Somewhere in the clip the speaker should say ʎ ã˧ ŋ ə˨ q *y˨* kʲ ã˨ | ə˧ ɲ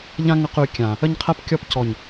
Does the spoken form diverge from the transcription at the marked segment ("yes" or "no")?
no